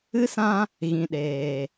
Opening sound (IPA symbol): ɨ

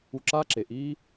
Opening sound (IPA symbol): u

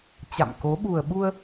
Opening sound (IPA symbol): t͡ɕ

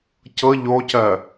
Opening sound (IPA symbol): c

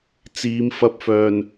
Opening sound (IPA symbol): t͡s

